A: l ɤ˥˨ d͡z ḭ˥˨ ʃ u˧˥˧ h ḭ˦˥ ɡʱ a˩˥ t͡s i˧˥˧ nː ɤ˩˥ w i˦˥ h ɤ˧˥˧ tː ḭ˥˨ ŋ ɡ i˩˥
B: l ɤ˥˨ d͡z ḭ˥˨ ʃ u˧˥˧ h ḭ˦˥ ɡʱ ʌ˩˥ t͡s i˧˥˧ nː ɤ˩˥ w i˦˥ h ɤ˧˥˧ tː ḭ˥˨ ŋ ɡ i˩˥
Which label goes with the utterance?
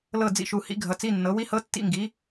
B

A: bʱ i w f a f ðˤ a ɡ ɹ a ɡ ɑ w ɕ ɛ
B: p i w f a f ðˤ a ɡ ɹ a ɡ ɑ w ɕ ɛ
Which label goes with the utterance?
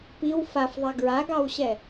B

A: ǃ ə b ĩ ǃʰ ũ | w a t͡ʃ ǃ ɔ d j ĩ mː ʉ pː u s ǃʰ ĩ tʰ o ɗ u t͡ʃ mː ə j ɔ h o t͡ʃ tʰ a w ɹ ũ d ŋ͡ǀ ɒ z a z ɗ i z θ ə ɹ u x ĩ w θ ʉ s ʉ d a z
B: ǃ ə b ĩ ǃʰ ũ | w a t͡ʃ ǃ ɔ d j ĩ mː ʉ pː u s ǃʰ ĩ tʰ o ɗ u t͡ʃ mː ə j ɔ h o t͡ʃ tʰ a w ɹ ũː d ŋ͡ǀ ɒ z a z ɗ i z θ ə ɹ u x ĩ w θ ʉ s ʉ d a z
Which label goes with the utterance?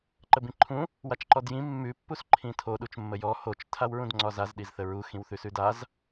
A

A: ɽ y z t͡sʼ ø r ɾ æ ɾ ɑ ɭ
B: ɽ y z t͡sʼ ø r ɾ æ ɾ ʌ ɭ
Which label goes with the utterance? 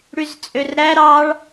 A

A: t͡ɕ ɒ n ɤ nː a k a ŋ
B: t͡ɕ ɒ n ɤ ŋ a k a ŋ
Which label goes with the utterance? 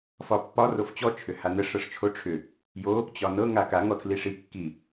B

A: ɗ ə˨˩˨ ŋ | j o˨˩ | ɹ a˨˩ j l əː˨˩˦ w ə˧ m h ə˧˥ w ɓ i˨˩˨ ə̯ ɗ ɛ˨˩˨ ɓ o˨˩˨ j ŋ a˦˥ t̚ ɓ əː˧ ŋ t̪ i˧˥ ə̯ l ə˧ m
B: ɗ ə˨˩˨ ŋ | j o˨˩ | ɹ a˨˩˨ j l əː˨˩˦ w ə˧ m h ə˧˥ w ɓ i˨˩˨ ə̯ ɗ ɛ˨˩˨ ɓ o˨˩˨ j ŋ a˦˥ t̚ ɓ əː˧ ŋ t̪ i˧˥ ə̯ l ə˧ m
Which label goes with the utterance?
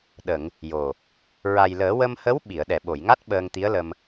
A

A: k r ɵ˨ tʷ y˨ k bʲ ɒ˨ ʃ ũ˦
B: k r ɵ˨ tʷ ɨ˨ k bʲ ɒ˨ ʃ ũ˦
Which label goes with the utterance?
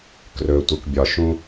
B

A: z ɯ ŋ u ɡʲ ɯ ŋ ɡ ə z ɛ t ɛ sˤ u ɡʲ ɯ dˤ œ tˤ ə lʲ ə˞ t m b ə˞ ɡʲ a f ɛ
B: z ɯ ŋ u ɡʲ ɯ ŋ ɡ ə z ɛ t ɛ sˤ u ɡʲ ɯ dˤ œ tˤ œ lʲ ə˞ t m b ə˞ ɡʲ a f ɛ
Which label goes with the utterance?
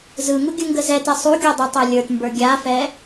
B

